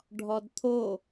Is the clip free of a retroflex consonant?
no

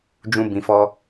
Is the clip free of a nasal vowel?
no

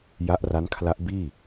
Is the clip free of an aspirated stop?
no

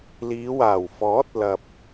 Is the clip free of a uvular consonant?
yes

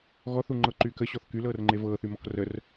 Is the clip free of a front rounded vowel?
no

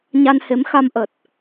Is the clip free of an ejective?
yes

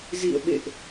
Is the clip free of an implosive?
no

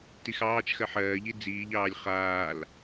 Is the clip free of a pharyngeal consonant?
no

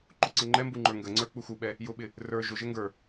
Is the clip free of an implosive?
no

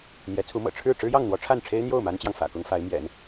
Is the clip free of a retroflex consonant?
no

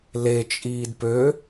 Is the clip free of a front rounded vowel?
no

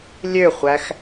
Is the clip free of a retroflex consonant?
yes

